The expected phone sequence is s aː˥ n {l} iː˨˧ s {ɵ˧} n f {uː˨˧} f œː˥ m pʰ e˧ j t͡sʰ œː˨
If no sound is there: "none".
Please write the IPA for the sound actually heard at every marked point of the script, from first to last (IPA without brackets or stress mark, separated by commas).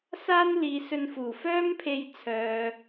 l, ɵ˧, uː˨˩